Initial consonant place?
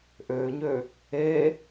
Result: glottal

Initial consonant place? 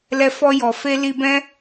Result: alveolar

